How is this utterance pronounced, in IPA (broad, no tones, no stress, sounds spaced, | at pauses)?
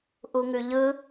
ʔ u ŋ ʉ ʎ ɯ